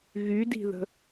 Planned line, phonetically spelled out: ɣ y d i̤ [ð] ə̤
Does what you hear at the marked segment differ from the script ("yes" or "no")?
no